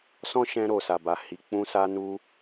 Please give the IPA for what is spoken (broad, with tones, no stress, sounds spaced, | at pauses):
s ɔ̃˦ ʃ ɛ̃˧ ɾ o˨ s a˨ b a˨ h i˨ k͡p ũ˧ s a˧ n u˧